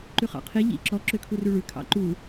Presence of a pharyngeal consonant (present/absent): absent